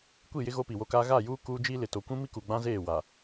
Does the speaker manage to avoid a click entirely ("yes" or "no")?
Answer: yes